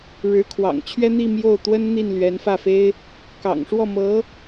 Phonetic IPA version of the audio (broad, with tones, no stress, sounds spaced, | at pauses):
ɻ ɻ̩˧˥ kʰ w ɑ̰˨˩ ŋ t͡ɕʰ ɥ ɛ˥ n̪ i˥˧ m j o˥˩ ʊ̯ t̪ w ə˥ n n̪ i˥˩ n l ɥ ɛ˧˥ n f ä˥˩ f e˥ ɪ̯ | k ɑ̰˨˩ ŋ ʂ w ɔ˥˩ m ɤ˧˥